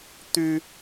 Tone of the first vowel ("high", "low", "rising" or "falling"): high